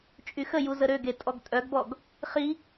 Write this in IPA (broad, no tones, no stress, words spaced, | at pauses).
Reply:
t͡ʃʼyxəju zəɾøɡe tʼɔɡtʼœɡbɔɡ | χi